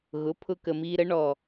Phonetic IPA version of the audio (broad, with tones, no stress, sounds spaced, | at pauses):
ɣ ʊ˩˥ pʰ ʊ˧ k ə˨˩ m iː˧ ɾ ə˩˥ ɳ ɔ˨˩